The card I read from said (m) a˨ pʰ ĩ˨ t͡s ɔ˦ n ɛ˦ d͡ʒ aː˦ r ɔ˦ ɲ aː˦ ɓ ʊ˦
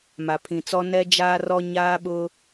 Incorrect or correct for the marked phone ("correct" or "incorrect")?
correct